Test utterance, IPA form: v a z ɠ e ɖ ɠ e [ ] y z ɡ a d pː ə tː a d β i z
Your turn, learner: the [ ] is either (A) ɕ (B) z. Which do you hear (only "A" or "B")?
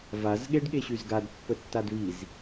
A